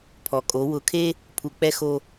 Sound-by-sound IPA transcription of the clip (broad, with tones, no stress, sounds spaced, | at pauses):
pʰ ɔ˩ kʼ o˩˧ w ʊ˩˧ kʰ e˧ | pʰ u˩ k͡p ɛ˧ x o˧